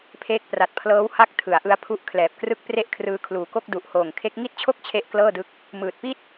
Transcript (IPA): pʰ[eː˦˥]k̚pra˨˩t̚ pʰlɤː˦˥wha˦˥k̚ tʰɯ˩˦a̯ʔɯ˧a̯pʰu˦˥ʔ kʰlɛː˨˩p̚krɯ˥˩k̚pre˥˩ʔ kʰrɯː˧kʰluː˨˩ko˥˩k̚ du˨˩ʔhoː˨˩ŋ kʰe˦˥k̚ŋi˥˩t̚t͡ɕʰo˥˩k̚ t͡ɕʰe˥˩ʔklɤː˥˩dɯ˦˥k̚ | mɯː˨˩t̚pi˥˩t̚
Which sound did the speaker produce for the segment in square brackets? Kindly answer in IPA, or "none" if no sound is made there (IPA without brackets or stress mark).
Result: eː˦˥